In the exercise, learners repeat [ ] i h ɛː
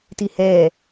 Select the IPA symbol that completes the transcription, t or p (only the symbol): t